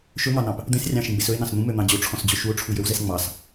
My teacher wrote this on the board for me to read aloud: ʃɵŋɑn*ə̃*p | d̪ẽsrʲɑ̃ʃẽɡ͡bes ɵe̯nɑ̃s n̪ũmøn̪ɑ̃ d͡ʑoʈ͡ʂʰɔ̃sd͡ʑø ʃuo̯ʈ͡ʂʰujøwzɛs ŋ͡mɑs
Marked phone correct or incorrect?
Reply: incorrect